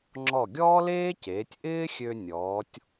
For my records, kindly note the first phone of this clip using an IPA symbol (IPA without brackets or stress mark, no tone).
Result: ŋ͡ǁ